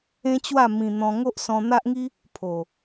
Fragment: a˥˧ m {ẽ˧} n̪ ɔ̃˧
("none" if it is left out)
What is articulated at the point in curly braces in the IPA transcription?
ĩ˧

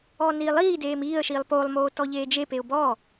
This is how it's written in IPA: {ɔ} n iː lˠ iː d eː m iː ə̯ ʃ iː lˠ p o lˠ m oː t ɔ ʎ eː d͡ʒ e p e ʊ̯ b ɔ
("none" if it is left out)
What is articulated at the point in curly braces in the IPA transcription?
ɔ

